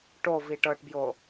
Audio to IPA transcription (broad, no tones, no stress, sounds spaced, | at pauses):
ʈ o v i ʈ ɤ ʈ b j o